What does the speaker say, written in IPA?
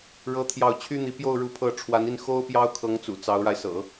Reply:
ɻ ɤ˥ t̪ʰ j ɑ˥˩ ʊ̯ t͡ɕʰ y˥ n̪ i˧˥ p j o˥˧ ʊ̯ ɻ u˥˧ pʰ ɤ˥˩ ʈ͡ʂʰ w a˧˥ n i˥˩ n x o˥ ʊ̯ p j ɑ˥ ʊ̯ kʰ ɤ˧˥ ŋ t͡s ṵ˨˩ t͡s ɑ˧˥ ʊ̯ ɻ a˧ ɪ̯ s ɤ̰˨˩˦

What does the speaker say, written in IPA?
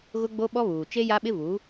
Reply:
ɣ ʊ˦ ɡ͡b o˦ ɓ ɔ˦ β uː˨ t͡ʃ e˦ j a˦ ɓ ɪ˦ v u˨˦

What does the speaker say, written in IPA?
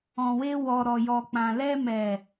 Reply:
ɔ̃˨ w e˧ w ɔ˨ ɾ ɔ˨ j ɔ˨ k͡p ã˨ l ɛ˧ m ɛ˨

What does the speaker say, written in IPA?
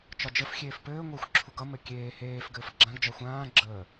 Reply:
t͡ʃ ɒ d͡ʒ ə f xʲ eː f p ɘː ŋʷ əː xʷ ǁʰ u ɡ ʌ m ɘ kʲ eː h eː f ɡ ɘː f ɡ͡ǁ ã ɡ d͡ʒ ɒ xʷ ãː ɡ͡ǁ əː

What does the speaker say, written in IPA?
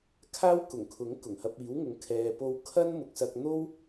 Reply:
kʰ aː˥ w k ʊ˨˩ ŋ kʰ ʊ˨˥ ŋ k ʊ˨˩ ŋ h ɐ˧ p̚ iː˨˥ w ŋ ʊ˨˧ ŋ kʰ ɛː˨ p o˧ w kʰ ɐ˥ n m ʊ˨ k̚ s ɐ˧ k̚ n̪ o˥ w

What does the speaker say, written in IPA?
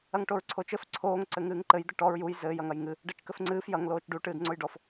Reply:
ɐ ŋ ʈ o ɹ ǀʰ o t͡ʃ ɘ f ǀʰ oː ŋ ǀ ɘ ŋ ɨː ŋ ǃ ɘ j d̪ ɘ ʈ ɔ ɹ j u j z ɘː j ɐ ŋ ɐ j ŋ ɨ | ɖ ɐ t͡ʃ k ɘ f ŋ͡ǀ ɨː f j ɐ ŋ l oː t͡ʃ ɖ u ʈ ɨː d ŋ͡ǀ o j ɖ ɔ f

